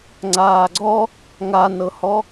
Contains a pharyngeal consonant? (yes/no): no